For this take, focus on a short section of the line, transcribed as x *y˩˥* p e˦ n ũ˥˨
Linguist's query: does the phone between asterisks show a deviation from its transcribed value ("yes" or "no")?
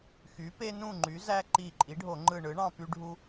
no